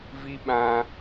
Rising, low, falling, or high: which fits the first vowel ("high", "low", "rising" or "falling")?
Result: high